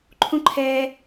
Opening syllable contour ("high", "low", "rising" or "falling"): high